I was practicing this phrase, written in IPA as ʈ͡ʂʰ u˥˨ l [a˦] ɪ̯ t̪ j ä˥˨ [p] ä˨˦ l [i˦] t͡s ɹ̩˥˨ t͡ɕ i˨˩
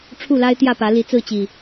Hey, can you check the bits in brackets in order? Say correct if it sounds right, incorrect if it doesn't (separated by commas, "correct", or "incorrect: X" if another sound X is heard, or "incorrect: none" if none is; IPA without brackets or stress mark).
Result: correct, correct, incorrect: i˨˦